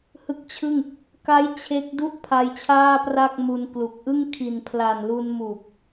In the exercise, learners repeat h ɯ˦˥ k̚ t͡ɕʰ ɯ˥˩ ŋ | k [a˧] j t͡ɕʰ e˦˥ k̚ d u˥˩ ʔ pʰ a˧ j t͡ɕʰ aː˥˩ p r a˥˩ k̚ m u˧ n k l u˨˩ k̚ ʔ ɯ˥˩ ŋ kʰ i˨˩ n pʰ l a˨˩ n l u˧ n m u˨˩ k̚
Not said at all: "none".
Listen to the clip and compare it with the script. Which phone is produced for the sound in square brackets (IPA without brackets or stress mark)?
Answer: a˦˥